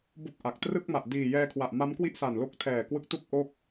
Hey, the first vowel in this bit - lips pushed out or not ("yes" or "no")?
yes